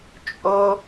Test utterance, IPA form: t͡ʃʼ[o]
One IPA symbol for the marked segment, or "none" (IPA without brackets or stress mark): o